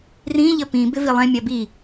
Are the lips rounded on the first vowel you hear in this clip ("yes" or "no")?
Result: no